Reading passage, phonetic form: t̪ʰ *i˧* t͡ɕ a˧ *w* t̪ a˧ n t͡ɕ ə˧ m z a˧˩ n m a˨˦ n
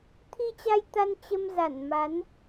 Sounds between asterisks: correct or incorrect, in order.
correct, incorrect

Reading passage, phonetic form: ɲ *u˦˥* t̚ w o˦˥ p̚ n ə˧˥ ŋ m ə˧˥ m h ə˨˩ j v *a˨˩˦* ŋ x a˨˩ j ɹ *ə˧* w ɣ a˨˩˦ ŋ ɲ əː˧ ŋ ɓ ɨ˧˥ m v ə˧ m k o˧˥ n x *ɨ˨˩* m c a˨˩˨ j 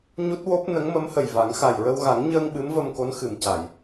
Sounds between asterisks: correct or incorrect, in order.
correct, correct, correct, correct

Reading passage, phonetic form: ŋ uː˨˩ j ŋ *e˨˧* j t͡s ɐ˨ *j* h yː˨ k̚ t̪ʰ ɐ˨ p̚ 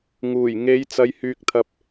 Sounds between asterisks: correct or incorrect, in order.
correct, correct

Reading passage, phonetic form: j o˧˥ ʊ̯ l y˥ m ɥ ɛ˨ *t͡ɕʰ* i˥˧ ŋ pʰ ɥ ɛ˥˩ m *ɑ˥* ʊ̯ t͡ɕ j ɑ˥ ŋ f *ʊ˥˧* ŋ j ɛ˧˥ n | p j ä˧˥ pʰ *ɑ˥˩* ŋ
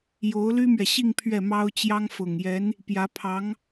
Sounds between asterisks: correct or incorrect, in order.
incorrect, correct, incorrect, incorrect

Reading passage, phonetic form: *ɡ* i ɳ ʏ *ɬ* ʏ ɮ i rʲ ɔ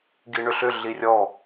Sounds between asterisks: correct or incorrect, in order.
correct, correct

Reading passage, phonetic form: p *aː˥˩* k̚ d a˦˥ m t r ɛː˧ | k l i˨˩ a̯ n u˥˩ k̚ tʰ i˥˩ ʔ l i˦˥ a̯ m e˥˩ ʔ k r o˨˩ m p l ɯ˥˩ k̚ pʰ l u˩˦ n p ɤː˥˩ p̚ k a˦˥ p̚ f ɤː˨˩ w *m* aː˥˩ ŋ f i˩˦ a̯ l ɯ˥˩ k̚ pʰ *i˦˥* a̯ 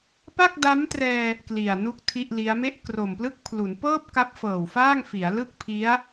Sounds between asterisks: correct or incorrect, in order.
incorrect, incorrect, correct

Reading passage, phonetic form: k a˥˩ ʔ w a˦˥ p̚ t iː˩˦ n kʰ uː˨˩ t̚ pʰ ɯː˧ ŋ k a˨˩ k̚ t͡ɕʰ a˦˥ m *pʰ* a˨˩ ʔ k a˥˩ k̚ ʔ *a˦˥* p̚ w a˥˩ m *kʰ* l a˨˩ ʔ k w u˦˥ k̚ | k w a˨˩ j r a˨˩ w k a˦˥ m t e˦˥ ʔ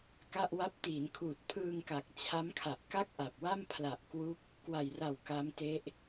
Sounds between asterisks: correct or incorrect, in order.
incorrect, incorrect, incorrect

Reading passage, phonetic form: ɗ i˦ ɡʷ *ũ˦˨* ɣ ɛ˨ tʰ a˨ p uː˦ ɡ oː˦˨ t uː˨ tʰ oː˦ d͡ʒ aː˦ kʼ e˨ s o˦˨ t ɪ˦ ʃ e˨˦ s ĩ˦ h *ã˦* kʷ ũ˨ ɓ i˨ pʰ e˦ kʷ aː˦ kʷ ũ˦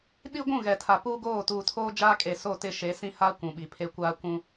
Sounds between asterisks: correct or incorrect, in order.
correct, incorrect

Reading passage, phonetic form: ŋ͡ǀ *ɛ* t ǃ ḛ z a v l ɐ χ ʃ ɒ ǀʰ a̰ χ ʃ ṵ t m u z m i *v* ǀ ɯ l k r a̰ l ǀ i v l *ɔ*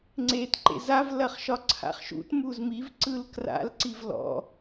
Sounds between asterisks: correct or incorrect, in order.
incorrect, correct, incorrect

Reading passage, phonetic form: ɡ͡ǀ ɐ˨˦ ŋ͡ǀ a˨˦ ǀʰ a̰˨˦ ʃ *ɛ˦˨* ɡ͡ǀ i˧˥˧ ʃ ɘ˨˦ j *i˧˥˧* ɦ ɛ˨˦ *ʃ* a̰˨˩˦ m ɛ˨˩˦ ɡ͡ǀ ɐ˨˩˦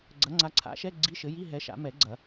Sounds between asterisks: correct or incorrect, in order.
incorrect, correct, correct

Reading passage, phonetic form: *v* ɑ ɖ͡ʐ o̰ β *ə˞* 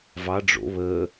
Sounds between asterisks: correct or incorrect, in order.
correct, incorrect

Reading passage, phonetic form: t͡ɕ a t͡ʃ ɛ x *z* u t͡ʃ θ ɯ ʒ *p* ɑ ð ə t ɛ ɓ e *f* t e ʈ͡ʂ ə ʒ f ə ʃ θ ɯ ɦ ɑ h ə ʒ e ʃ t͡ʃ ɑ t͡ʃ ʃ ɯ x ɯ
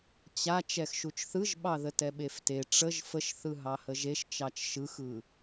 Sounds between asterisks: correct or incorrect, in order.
incorrect, incorrect, correct

